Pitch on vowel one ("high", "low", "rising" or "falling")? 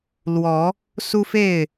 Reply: rising